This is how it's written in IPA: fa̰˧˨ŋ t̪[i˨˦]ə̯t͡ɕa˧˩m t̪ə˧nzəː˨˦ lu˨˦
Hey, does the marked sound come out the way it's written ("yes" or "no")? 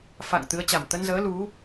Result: no